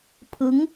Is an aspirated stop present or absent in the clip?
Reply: present